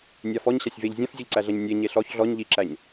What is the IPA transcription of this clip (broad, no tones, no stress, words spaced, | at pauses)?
nʲafɔɲ ɕasʲveʎ zʲãfzʲɔʎǀæɮɐɲ nʲe ɲeɬɔç ɮɔɲ ʎiǁæɲ